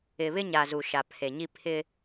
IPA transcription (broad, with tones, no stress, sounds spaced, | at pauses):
ɪ˨ β ɪ˦ ɲ a˨ z u˨ ʃ a˨ pʰ e˨ ɲ i˦ pʰ ɪ˦